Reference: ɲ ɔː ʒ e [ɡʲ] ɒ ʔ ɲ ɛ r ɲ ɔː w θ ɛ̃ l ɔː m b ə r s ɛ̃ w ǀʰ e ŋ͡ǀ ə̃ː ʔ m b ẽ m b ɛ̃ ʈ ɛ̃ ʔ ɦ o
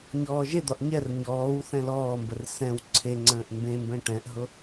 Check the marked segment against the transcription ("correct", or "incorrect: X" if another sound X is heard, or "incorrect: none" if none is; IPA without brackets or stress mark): incorrect: d̪